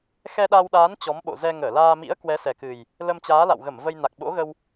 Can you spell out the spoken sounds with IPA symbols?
x ɛ˧ ɗ a˧ w ɗ aː˨˦ n t͡ɕ ɔ˨˦ m ɓ o̰˧˨ z ɛ˧ ŋ əː˧˩ l aː˧ m ḭ˧˥ ə̯ k w ɛ˨˦ s ɛ˨˩ k ɨ˨˩ j | l ə˧ m t͡ɕ aː˨˦ l a̰˧˨ w ɣ ə˧˩ m v ə˧ j n a˨˩ k̚ ɓ o̰˧˥ ɣ ə˧ w

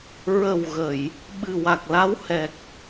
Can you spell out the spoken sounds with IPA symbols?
ɹ ə˨˩ w ɣ ə˨˩˨ j | ɓ ɨ˨˩ w a˨˩ k̚ l a˧˥ w h ɛ˨˩ k̚

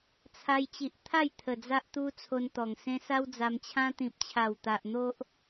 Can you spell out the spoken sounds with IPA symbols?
t͡sʰ a˧ j t͡ɕ i˨ ʔ t̪ʰ a˥˧ j t̪ʰ ə˨˩ d͡z a˦ ʔ t̪ u˦ t͡sʰ o˧ n t̪ ɔ˨˩ ŋ s ẽ˦ s a˦ w d͡z a˧ m t͡ɕʰ ã˦ t̪ ĩ˨ p̚ t͡ɕʰ a˨˩ w t̪ a˨ ʔ n̪ o˦ ʔ

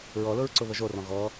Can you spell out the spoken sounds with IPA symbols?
ɹ ɔ l ʊ ɹ ǀ ʊ β ə ʒ o r ɔ̃ ɣ ɔ

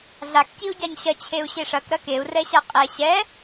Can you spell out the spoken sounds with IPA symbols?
ɮ a k c i u̯ ɟ a ɲ ɕ ɐ t͡ɕʰ e u̯ ɕ e ʂ ɐ k ɾ ɐ k e u̯ r ɛ ɕ a qʼ ɛ ɕ ɛ

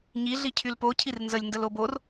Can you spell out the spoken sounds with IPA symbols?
ɲ i ɮ i cʰ y l p o cʰ i r n z ə lʲ n d ə l o b o r

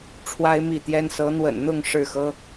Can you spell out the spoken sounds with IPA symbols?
ʈ͡ʂʰ w a˦ ɪ̯ m i˥˨ t̪ j ɛ˦ n s ɤ˨˦ n̪ w ə̰˨˩ n n̪ ʊ˥˨ ŋ ʂ ɻ̩˥˨ x ɤ˦

